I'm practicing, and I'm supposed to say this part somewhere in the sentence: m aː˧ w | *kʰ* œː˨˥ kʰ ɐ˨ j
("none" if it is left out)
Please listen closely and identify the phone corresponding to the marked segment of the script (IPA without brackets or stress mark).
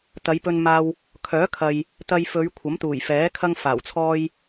kʰ